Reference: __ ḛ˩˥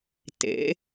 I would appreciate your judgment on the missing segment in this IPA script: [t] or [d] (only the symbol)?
t